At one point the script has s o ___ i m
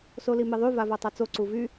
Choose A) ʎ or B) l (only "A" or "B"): B